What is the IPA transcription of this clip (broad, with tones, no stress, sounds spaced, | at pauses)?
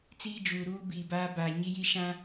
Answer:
t͡s iː˦ d͡ʒ uː˨ ɾ uː˦ b iː˨ b aː˦ b aː˨ ɲ i˦ j i˦ ʃ ã˦